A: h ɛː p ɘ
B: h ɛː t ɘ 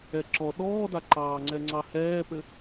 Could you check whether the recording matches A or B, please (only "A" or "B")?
A